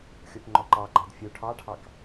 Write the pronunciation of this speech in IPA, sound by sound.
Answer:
xʲ o p ŋ͡ǃ ɔ ǃ ɑ ɡ͡ǃ ɑ d fʲ u ʈʰ ɑ ʈʰ ɑ k

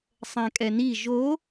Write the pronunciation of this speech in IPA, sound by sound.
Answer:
sˤ ɛ̃ kʼ ɛ n i ʒ o

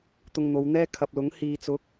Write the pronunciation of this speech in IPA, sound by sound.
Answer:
t̪ ʊ˧ ŋ n̪ o˨˧ w n̪ ɛː˥ kʰ ɐ˨ p̚ l ʊ˨˥ ŋ h iː˨ t͡s ʊ˨˥ k̚

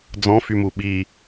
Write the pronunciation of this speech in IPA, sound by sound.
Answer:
d͡z ɔ̃ f y m u ɓ i

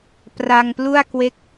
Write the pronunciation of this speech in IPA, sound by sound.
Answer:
p r a˧ ŋ p l u˥˩ a̯ k w e˦˥ k̚

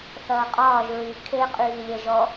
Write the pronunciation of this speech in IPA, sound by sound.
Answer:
θ ɐː qʼ ɒː ʒ ɹ y kʰ e qʼ yː lʲ ɛ ʒ ɔ

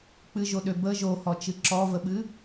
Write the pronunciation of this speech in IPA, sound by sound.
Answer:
k͡p ɨ ʒ o ɗ ø b ə ʒ o h ɔ t͡ʃ ɨ ǁ ɔ v ə ɓ ɨ

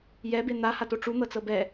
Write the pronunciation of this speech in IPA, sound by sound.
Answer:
j ɛ b e n̪ a h a t o ʈ͡ʂ u n̪ ɤ t͡s ɤ b ɛ

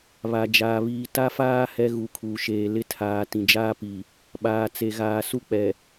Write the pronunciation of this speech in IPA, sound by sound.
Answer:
β a˨ d͡ʒ aː˨ β iː˨ t a˦ f aː˦ h ɛ˦ ɣ u˨˦ kʰ uː˨ ʃ eː˨ l ɪ˦ tʰ aː˨ t ĩ˨ d͡ʒ aː˦ p i˨ | ɓ aː˨ t͡s e˨ ɣ aː˨ s u˦ k͡p ɛ˨

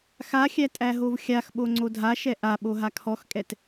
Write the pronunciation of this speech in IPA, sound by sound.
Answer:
x a xʲ æ tʼ æ ɦ o v xʲ a x ɓ o ŋ͡ǀ o dʱ a ʃ ɛ ʔ a ɓ o ɦ a kʰ ɔ x kʼ ɛ t

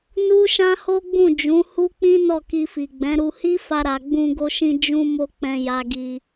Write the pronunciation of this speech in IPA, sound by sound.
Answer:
n u˦ ʃ ã˦ h o˦ ɡ͡b ũ˦˨ d͡ʒ ũ˨˦ h u˦ k͡p ĩ˦ n ɔ˦˨ k i˧ f i˨ ɡ͡b ɛ̃˨˦ ɾ u˧ h i˦ f a˧ ɾ a˨ ɡ͡b ũ˧ ɡ o˧ ʃ ĩ˧ d͡ʒ ũ˧ m o˧ k͡p ɛ̃˧ j a˧ ɡ i˧

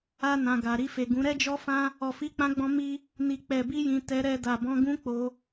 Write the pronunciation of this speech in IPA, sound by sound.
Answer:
a˧ n ã˨ ɡ a˨ ɾ i˧ f e˨ ɡ ũ˨˦ ɾ ɛ˦ d͡ʒ ɔ˦ f ã˦ | ɔ˨ f i˨˦ k͡p ã˧ ɡ͡b ɔ̃˧ m i˦ | n i˧ k͡p ɛ˧ b i˦ j ĩ˧ t ɛ˧ ɾ ɛ˧ d a˨ b ɔ̃˧ ɡ ũ˦ k͡p o˧

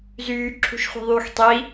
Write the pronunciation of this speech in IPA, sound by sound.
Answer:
z yː ǁʰ ṳ ʃ χʷ i̤ ðˤ yː x tˤ i

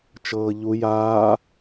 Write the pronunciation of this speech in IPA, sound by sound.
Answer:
t͡ʃ ɤː ʎ u j aː

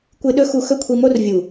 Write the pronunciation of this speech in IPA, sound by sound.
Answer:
kʷ ɨ˧ ɗ ɵ˦ x u˧ x ɵ˦ kʷʰ i˧ m o˦ r vʲ u˨

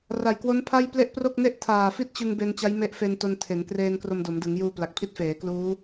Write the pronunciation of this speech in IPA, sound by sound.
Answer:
r a˨˩ j k w o˦˥ n pʰ a˥˩ j p l e˥˩ ʔ p r o˥˩ k̚ n e˥˩ ʔ tʰ aː˨˩ f i˥˩ t̚ t͡ɕ ɯ˧ ŋ b e˧ n t͡ɕ a˦˥ j m e˦˥ ʔ f e˧ n t o˧ n tʰ e˩˦ n k r eː˧ n k r o˧ m d o˩˦ m d ɯ˩˦ ŋ j uː˧ p l a˨˩ k̚ pʰ i˦˥ t̚ f eː˩˦ k l uː˦˥

